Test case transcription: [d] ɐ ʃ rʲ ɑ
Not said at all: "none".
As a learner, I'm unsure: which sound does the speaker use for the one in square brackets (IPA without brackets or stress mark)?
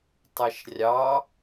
tˤ